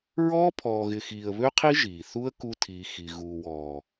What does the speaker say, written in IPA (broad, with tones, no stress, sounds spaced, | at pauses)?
ɹ ɔː˦ pʰ ɔː˨ ɣ ɪ˨ x iː˨ ə̯ β ø˦ qʰ i˦ ʒ iː˨ θ u˦ ə̯ k u˦ tʰ iː˨ x i˨ ɣ uː˨ w ɔː˨